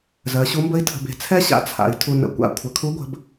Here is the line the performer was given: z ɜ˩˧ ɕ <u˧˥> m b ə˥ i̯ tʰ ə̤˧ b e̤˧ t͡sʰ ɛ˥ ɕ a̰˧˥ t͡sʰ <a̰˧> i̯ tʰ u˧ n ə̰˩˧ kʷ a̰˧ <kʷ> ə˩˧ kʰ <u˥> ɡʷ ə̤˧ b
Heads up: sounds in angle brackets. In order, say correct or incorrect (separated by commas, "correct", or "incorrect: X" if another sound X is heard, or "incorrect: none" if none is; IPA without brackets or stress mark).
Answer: correct, incorrect: a̰˩˧, incorrect: kʷʰ, incorrect: u˧˥